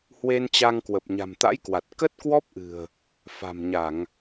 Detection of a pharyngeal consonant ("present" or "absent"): absent